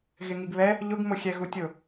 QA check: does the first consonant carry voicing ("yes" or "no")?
yes